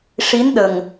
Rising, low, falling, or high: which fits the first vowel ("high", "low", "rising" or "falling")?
rising